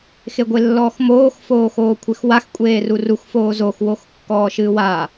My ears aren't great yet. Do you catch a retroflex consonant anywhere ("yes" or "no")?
no